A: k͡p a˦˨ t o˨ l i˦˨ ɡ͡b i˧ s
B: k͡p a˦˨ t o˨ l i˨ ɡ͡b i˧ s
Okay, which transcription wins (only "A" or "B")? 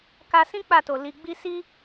B